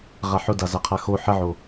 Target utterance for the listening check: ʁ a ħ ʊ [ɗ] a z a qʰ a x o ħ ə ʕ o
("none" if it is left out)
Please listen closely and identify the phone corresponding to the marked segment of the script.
d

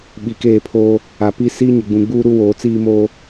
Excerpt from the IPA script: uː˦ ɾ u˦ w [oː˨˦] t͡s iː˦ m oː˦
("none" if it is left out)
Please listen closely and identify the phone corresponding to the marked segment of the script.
oː˨˦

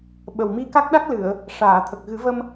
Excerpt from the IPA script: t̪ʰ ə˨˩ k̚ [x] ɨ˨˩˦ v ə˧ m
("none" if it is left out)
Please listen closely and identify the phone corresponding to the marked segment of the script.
ɣ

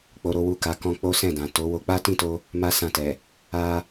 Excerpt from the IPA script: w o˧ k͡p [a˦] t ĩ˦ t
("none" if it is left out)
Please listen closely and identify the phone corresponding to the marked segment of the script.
a˦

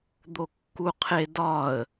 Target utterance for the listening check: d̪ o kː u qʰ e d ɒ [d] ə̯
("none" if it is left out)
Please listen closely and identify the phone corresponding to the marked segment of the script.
none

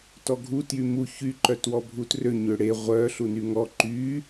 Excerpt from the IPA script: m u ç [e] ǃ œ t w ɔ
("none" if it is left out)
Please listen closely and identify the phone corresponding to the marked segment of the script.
y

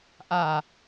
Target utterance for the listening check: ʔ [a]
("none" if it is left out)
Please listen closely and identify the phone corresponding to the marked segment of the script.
a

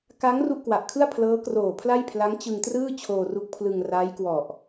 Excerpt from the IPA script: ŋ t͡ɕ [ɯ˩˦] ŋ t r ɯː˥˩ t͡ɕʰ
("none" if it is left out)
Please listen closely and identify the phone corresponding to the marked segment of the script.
ɯ˧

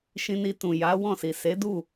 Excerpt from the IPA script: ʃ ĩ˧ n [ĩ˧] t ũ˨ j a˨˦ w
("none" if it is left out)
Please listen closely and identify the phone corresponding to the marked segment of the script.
i˧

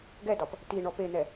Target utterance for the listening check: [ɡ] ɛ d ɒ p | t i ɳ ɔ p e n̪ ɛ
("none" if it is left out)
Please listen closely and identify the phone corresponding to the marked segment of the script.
ɡ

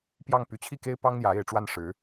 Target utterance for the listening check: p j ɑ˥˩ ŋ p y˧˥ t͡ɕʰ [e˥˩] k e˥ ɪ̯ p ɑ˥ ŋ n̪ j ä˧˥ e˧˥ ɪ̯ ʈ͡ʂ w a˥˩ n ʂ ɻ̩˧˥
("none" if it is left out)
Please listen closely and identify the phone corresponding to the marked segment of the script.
i˥˩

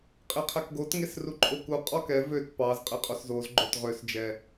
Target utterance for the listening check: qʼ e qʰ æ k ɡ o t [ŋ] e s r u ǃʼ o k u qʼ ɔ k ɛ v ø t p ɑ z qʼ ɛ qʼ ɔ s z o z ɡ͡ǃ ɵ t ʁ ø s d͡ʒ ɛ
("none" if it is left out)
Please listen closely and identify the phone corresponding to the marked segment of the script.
ŋ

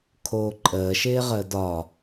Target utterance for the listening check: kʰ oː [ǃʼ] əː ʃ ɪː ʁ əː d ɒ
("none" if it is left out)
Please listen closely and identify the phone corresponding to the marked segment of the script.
ǃʼ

